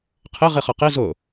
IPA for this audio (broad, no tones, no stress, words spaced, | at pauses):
qʰɪ ʁiχʌqi zʊ